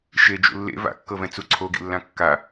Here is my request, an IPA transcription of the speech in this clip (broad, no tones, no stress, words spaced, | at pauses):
ʃed͡ʒṵ lːḛ va̰kːɤvɛ̃ t͡suǀʰoɡḭlːã kːa